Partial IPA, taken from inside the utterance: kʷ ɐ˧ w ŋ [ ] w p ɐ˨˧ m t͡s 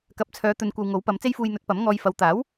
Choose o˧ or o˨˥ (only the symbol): o˨˥